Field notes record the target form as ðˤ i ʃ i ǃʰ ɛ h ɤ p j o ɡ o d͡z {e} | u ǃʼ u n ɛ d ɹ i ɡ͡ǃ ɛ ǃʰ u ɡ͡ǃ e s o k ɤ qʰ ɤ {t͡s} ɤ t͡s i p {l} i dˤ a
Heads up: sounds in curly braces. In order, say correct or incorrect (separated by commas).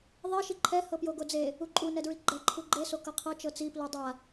correct, incorrect, correct